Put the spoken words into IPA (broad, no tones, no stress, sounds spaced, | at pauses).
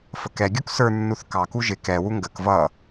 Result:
f ə k ɛ ɡʲ u k s ə˞ nː u θ k ɑ k u ʒ ɪ k ɛ w u ŋ ɡ ə k v ʌ